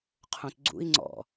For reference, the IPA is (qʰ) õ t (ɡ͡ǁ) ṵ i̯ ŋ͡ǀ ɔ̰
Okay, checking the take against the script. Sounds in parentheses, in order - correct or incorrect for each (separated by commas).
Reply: correct, incorrect